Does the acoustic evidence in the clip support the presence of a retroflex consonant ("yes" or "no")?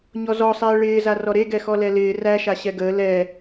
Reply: yes